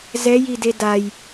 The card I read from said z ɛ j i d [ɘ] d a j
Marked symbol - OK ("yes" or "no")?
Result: no